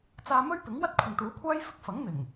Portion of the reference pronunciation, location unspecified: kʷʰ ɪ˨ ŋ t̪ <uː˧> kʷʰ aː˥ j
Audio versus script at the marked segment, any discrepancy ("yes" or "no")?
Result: yes